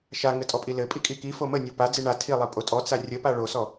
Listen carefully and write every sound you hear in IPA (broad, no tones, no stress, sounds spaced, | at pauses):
ʃ a ŋ ɘ tʼ ɔ pʼ i l ɘ pʼ i kʼ i k i f o m ə nʲ o p a d͡z i ɳ a tʰ i lˠ i pʼ o tʼ ɔ t͡s a rʲ ə p a ɭ o s ɔ